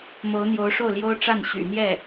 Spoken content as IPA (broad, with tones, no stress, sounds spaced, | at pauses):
m o˧˥ ʊ̯ n̪ j o˧˥ ʊ̯ ʂ o˥˩ ʊ̯ l j o˥ ʊ̯ ʈ͡ʂ a˥˩ n ɕ y̰˨˩ n̪ j ɛ˥˩